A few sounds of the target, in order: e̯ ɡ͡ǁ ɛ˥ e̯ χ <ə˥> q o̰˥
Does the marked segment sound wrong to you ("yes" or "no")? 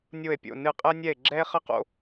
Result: no